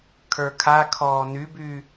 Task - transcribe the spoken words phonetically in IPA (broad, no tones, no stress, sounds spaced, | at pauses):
kʰ ə˞ kʰ a kʰ ɔː n y b y